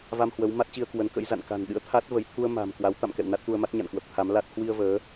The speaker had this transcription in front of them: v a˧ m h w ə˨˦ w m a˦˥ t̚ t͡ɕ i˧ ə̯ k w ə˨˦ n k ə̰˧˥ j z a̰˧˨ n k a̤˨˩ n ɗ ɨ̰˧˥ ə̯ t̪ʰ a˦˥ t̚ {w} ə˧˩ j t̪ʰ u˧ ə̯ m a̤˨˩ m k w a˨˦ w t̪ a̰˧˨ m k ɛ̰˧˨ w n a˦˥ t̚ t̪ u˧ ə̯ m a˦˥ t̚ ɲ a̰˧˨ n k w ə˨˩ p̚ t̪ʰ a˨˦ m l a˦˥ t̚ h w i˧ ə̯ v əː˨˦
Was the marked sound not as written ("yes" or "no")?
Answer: yes